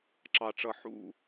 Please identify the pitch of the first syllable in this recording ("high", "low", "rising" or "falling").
low